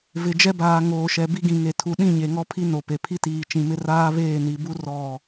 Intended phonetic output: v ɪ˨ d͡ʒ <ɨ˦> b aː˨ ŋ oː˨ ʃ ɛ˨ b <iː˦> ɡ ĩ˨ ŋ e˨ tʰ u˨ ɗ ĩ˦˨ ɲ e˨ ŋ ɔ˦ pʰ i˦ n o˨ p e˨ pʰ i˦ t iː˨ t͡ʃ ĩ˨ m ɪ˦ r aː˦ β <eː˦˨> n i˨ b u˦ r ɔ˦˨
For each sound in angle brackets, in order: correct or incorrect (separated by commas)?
incorrect, incorrect, correct